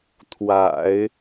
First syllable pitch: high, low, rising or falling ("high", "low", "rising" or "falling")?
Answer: low